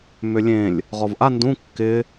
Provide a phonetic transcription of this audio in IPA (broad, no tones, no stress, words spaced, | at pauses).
mʏlʲẽlʲ | ʁɔvʔa ndũ kːɪ